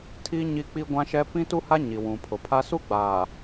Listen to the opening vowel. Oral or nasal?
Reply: oral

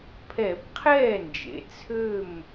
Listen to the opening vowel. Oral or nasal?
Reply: oral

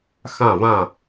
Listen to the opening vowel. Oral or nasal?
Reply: nasal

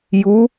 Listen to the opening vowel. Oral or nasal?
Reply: oral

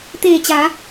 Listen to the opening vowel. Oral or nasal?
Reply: oral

